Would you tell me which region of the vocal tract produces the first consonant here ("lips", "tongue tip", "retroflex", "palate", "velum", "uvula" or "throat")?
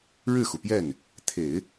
retroflex